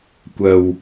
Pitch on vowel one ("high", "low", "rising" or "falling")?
low